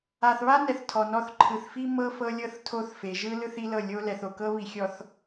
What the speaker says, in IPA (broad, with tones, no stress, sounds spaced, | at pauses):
a˨ θ β a˦ n ɛ˨ θ tʰ ɔ˨ n ɔ˦ θ ǃʰ ɯ˨ θ f i˦ m ɤ˦ f ɤ˦ lʲ ɤ˦ θ tʰ o˦ θ f e˨ ʒ ɯ˦ l ɯ˦ θ i˦ l ɤ˦˨ lʲ o˦ l ɛ˨ θ o˨ k ɤ˦ β i˨ xʲ ɔ˨ θ